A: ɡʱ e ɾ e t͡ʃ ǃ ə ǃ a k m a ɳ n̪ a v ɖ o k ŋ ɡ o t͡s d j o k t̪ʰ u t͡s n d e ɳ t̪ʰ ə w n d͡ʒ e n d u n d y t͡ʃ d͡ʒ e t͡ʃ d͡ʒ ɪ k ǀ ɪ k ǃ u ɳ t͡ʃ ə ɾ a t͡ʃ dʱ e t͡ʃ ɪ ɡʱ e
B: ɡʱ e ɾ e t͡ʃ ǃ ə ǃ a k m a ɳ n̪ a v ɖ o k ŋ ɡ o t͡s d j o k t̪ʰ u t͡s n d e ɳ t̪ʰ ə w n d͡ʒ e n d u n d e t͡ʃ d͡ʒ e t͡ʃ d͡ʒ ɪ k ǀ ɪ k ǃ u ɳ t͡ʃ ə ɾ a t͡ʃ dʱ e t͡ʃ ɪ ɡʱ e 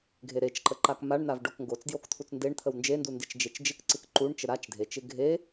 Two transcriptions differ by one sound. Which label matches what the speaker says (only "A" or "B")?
B